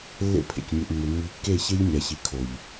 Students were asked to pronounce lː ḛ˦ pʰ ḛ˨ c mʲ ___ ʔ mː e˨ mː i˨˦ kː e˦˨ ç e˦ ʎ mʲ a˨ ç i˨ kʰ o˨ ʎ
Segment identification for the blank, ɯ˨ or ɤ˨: ɯ˨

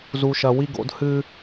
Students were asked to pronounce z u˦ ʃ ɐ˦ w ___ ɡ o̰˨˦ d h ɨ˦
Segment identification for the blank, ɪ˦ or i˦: i˦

